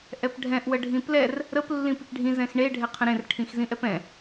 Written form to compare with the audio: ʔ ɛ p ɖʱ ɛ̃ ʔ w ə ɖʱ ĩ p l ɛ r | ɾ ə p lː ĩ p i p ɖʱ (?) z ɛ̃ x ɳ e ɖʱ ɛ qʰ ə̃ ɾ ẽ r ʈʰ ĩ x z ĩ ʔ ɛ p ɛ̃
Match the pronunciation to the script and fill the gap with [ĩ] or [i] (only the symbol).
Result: ĩ